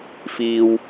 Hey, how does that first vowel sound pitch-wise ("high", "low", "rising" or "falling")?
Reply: low